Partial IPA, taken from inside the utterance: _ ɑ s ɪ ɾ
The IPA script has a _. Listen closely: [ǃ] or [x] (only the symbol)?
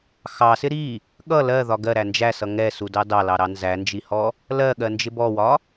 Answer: x